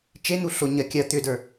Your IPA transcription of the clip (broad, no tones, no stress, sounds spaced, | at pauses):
t͡ʃ e n̪ u ɬ o ɲ ɐ kʲ ɐ t̪ ʏ d ə˞